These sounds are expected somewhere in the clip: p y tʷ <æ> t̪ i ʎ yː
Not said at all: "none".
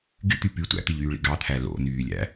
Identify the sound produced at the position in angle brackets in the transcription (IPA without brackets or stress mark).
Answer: æ̰